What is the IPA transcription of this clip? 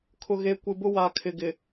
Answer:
kʰʊ˨ɣe˨˦ kʷɪ˨bʊ˦ wa˨kʰɪ˨ɡɪ˨

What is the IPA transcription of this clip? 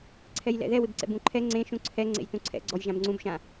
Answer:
ǀʰɛjlɛ̰ðɛ wɪbǀɛ̰bũǃʰɛ ŋ͡ǀẽʃũ ǀʰɛ ŋ͡ǀḛjtũǀʰɛ̰ɡ͡ǀɔj ʒãbŋ͡ǀũbʃã

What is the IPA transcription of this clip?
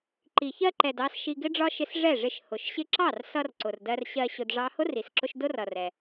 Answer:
ǃi˨çɜ˧ǃɛ˨d ɑ˦s ʃi˧ɡɪ˦ɖ͡ʐɒ˦ ʃɪ˧s ʐɛ˦˨ʐɪ˧ʃ hʊ˨ʃɕɪ˧ǁɑ˦˨rsʌ˧r ǀʊ˨rdɜ˧rɕɜ˧ ɕʊ˧dʐɑ˦ hʊ˦ri˨sǁʊ˧ʃ dʊ˦rʌ˨ rɛ˧

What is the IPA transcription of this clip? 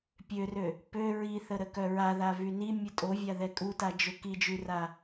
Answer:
pʲørø | pø ɹiθə ɾəkœɹaða vyni mʲutʼovʲa ðɛkʼutad͡ʒø kid͡ʒyra

